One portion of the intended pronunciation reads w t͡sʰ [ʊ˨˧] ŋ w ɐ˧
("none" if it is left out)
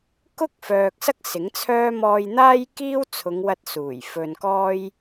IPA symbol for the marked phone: ʊ˨˧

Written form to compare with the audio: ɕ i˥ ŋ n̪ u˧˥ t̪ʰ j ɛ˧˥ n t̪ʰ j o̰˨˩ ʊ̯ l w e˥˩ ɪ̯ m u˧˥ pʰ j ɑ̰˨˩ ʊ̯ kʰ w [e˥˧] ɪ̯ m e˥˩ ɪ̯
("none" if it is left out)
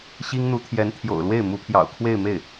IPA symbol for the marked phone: e˥˧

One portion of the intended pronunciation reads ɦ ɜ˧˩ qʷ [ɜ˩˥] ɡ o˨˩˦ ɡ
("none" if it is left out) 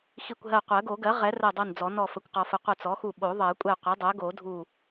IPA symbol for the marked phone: ɜ˨˩˦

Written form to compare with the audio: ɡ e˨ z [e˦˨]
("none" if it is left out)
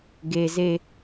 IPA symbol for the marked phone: e˦˨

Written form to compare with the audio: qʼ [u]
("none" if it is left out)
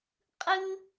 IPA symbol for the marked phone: ɯ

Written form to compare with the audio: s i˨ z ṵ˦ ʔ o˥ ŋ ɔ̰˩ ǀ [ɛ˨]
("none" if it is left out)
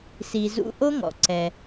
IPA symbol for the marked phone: ɛ˨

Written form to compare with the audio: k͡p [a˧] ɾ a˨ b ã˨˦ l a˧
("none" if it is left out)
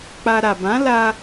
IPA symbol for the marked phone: a˧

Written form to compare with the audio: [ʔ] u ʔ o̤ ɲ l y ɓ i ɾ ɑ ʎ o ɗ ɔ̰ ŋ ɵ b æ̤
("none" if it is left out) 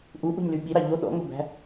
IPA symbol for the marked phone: ʔ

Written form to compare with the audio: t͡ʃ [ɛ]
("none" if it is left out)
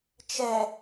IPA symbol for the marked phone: ɛ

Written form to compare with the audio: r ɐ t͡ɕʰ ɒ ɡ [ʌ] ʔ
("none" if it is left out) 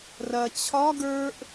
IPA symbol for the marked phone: ə˞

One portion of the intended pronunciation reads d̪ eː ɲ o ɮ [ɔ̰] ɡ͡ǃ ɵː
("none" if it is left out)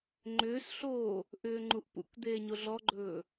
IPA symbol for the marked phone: ɔ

